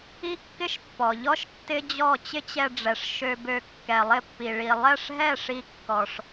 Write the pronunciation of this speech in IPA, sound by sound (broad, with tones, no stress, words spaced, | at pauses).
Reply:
i˥kːɪ˥ʃ pːɔ˩ʎɔ˥ʃ tːɪ˥d͡ʑɔ˥˩ t͡ɕɪ˥t͡ɕɛ˧ɖ͡ʐɛ˩ʂ ʃø˧bø˧ kːɛ˩lˠɪ˥˩pːi˩ ɭi˩lˠɛ˥˩ʂɦɛ˥˩ ʂi˧kːɔ˩ʂ